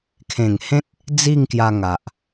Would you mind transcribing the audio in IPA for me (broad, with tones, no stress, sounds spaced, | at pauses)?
kʰ ẽ˨˩ ŋ h ẽ˦ t̚ | d͡z i˥˧ ŋ k j a˧ ŋ a˨ ʔ